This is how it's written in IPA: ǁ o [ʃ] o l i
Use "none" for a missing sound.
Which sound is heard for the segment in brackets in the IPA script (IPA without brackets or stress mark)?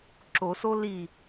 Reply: s